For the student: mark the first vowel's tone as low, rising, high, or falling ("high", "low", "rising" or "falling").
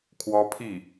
high